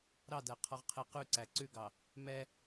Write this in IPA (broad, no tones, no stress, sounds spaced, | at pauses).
ɾ ɑ d æ qʰ ɔ ʁ qʰ e q ʉ ǀ æ ǀ ʉ ɡ ɑ | m ɛ